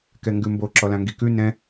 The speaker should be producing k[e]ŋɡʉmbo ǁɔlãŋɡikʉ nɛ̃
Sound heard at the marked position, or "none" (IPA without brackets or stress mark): ɛ